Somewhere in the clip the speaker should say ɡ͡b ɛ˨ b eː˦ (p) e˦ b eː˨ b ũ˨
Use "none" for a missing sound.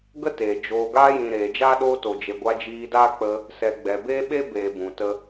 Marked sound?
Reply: ɓ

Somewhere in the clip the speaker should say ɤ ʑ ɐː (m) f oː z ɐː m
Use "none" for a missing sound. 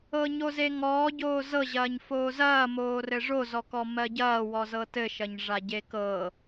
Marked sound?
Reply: ɲ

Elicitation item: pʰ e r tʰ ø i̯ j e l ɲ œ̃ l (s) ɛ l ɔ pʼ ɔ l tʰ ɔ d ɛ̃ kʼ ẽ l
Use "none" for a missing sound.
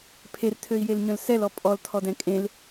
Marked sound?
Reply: s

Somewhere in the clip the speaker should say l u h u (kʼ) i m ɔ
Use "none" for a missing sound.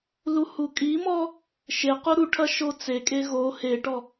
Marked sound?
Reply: kʼ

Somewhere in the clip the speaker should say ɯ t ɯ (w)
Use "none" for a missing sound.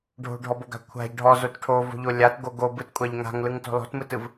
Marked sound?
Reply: v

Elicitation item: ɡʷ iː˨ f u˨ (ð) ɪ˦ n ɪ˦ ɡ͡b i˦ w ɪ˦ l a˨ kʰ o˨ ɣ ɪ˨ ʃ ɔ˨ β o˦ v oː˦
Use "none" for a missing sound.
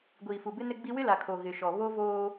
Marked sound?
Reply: b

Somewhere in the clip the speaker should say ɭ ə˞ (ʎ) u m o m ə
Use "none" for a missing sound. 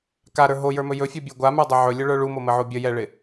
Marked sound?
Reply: ɭ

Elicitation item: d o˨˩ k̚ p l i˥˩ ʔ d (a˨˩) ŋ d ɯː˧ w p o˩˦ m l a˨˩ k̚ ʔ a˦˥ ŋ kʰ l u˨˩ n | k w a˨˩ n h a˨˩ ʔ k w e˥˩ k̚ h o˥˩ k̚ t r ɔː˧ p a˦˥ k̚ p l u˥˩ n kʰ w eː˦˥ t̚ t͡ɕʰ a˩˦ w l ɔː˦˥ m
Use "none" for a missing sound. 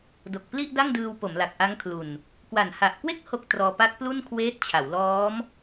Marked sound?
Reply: a˥˩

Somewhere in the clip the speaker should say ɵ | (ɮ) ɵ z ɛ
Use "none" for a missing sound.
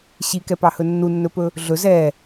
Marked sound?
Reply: ɮ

